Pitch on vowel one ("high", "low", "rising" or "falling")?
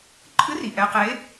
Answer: rising